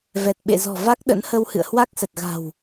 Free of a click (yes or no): yes